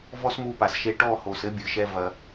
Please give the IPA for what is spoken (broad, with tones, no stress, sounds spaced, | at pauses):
v ɔ˦ s m u˧ p a˨ s ʃ e˧ ʈ ɔ˦˨ h o˨ s ɘ˦ bʲ ɨ˨ ʃ ɛ˧ v ɐ˧